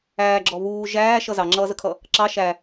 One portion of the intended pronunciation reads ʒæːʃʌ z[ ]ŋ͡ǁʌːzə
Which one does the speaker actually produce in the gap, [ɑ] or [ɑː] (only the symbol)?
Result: ɑ